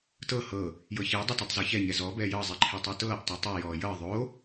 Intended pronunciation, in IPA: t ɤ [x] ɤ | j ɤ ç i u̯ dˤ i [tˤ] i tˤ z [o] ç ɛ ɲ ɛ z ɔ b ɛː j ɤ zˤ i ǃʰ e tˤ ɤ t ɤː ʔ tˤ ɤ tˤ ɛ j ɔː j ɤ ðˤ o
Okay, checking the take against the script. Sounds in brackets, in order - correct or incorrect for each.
incorrect: h, incorrect: t, incorrect: ɔ

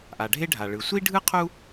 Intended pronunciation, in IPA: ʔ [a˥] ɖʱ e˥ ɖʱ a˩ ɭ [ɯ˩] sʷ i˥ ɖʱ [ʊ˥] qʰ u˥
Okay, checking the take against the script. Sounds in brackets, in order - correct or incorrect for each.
incorrect: a˩, correct, incorrect: ɯ˥

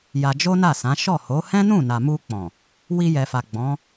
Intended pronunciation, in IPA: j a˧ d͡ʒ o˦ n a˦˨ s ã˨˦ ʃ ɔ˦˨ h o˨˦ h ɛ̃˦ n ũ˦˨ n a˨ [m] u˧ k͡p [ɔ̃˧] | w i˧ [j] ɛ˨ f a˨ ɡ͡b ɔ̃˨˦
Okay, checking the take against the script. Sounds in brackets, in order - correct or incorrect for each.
correct, incorrect: ɔ̃˨, correct

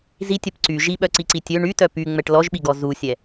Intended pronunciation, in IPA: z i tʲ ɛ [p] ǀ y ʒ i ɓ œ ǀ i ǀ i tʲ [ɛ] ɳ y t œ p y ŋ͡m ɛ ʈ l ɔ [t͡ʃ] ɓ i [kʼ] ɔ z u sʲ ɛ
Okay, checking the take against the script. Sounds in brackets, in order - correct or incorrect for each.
correct, incorrect: ø, incorrect: ʒ, incorrect: ɡ

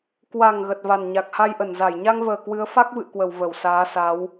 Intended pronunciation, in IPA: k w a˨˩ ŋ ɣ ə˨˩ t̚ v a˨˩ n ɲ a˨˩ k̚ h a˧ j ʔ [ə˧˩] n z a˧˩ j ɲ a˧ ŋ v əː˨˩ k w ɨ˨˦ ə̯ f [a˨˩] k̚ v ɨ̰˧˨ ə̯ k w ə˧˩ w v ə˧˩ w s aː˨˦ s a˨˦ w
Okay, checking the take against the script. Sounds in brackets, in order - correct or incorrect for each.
correct, incorrect: a˦˥

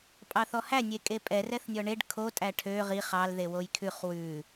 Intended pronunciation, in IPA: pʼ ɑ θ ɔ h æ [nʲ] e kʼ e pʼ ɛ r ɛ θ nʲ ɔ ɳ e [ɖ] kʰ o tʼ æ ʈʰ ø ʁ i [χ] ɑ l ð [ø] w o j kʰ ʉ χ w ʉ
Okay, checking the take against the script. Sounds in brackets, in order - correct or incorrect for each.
correct, correct, correct, incorrect: e

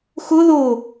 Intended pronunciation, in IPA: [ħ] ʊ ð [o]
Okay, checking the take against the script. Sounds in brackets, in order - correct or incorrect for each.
incorrect: x, correct

